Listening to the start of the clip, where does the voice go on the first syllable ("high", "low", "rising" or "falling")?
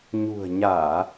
low